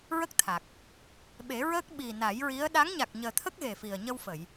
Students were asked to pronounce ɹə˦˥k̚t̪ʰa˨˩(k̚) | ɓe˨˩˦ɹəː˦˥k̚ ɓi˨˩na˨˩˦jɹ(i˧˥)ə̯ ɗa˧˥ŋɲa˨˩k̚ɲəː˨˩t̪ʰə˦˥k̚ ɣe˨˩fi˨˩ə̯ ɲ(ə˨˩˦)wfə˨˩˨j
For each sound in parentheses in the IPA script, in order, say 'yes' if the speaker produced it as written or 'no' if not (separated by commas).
yes, yes, no